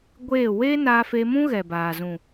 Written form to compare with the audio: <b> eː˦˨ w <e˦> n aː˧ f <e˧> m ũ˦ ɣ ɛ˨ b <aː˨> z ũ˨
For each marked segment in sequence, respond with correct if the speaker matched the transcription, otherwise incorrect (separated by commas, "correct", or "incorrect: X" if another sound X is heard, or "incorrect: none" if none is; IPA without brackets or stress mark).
incorrect: ɡʷ, correct, correct, correct